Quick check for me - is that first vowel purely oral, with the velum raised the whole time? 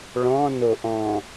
no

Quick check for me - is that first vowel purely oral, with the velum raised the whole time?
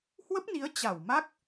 yes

